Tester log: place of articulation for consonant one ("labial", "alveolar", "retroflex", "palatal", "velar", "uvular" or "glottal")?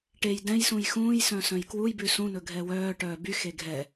retroflex